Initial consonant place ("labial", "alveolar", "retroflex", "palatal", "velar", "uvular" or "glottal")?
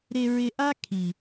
alveolar